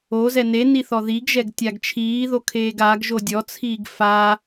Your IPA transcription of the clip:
o z ɛ n e n i θ ɔ ð i ɡ ʒ ɛ ɡ tʲ a ɡ t͡ʃʰ iː ð o kʰ eː ɡ a ɡ ʒ o dʲ ɔ t͡sʰ iː ɡ f a

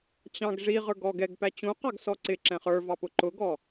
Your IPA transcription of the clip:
t͡ɕ ɑ̃ ɡ ʐ i ʁ ə˞ ɡ ɔ ɡ ɛ ɡ p æ t͡ɕ ũ q ɑ ɡ s ɔ ǀ ɪ ǁ ɛ̃ χ ə˞ v ɑ p ʊ ǃ ʊ ɡ ɔ

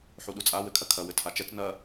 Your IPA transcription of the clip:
ħ u ɗ u t͡sʼ a w ɘ kʰ ɐ kʰ ɐ w ɘ tʰ a t͡ʃ ɛ t͡s n ɐ

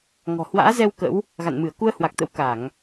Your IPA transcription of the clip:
ŋ ɔ̤˨˩ h w a̰ː˧˥ z ɛ˧ w k ə̰˧˥ w | ɣ a̰˧˨ n m ɨ˧˩ ə̯ k u˧ ə̯ h w a˨˩ k̚ t̪ ə̰˧˥ w k a˧˩˨ ŋ

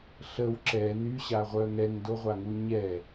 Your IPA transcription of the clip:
ɬ ə w ǁ ɛ n y ɕ a ʁʷ œ ŋ ɛ ŋ d o ʁʷ a ŋ u ɲ ɛ

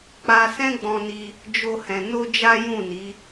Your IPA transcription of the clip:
k͡p a˧ s ɛ̃˦ ɡ͡b ɔ̃˧ n i˧ | d͡ʒ o˦ h ɛ̃˧ n o˦ d͡ʒ a˦ j ũ˦˨ n i˨˦

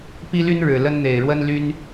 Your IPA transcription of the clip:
p i˦ l y˦ n ɻ ɻ̩˨˩ l ə˦ n n̪ e˨˩ ɪ̯ ɻ w ə˦ n l y˦ n

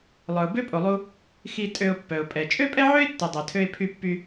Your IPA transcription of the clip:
lˠ œ˩ ʊ̯ b ø˥ pʼ o˩ lˠ u˧ | x i˧ tʼ ø˧ ʊ̯ pː œ˩ ʊ̯ pʼ ɛ˩ t͡ʃʼ ø˥ pʼ ɛ˥ ʕ ø˥ ɪ̯ tː o˩ dˤ œ˩ tʰ ø˧ ɪ̯ pʰ y˧ pː y˧

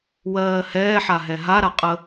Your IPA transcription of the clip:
w ɜː h ɛː ħ a ɦ ɛ ɦ a ɾ a qʼ ə

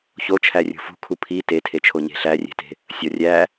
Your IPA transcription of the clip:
ç o t͡ʃʰ æ rʲ ṳ f ṳ kʰ u pʰ i t e tʰ e t͡ʃʰ o ɲ e̤ ɬ æ rʲ e̤ t e̤ | sʲ ɒ rʲ æ

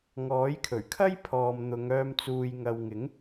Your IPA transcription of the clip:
ŋ ɔː˨˥ j kʰ ɵ˨˩ ɥ kʰ ɐ˥ j pʰ ɔː˨ m n̪ ʊ˨˧ ŋ œː˧ m t͡s uː˨ j ŋ ɐ˨ w ŋ ɪ˨˥ ŋ

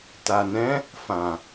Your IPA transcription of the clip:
t a˨ n ɛ̃˨˦ | f ã˨

